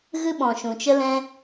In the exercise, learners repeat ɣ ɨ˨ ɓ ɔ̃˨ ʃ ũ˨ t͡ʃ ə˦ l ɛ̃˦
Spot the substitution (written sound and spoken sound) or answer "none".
ɨ˨ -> ɨ˦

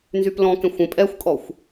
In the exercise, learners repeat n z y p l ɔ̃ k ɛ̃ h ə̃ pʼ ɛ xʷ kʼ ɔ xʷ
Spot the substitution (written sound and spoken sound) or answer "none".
h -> xʷ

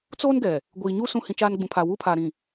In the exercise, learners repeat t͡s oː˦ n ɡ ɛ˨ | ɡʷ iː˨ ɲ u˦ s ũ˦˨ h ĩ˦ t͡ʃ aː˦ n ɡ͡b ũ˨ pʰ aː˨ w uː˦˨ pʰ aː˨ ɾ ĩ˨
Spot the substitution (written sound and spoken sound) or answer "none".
uː˦˨ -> uː˦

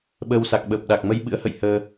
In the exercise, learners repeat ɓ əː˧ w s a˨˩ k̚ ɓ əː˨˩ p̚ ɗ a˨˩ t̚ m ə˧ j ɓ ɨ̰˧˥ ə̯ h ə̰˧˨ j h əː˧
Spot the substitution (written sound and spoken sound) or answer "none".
t̚ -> k̚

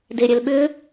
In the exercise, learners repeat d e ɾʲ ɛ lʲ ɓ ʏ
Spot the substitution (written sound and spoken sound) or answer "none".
lʲ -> l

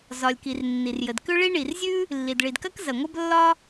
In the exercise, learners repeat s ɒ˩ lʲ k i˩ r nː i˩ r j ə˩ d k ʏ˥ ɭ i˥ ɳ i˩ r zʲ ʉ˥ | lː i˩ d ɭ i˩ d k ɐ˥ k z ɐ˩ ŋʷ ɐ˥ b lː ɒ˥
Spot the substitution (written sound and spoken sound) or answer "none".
s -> z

